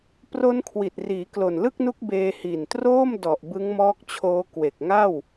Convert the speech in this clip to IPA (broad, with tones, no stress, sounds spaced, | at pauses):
p r o˦˥ n kʰ w i˨˩ t̚ r iː˩˦ k l o˨˩ n l ɯ˥˩ k̚ n u˦˥ k̚ b eː˧ h i˨˩ n t r oː˥˩ m d ɔ˨˩ ʔ b ɯ˦˥ ŋ m ɔː˦˥ k̚ t͡ɕʰ oː˦˥ k w e˨˩ k̚ ŋ a˥˩ w